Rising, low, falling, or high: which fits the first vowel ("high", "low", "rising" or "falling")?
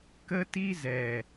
high